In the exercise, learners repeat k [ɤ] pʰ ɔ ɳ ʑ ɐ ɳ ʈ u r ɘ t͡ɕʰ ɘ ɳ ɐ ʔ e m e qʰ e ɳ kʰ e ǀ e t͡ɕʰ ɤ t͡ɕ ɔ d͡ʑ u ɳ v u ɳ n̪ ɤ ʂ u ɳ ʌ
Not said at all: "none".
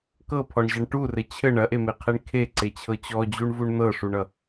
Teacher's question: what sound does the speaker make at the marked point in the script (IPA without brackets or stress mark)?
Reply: ɤ